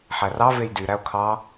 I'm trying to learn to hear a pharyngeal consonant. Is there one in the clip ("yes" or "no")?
yes